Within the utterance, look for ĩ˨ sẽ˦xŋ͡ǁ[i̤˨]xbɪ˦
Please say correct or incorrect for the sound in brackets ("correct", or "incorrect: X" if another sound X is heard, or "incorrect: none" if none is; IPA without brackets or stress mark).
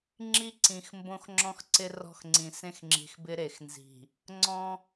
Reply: correct